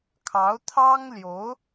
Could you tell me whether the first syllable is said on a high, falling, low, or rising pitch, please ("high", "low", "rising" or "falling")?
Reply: rising